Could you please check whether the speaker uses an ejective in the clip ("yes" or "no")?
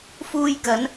no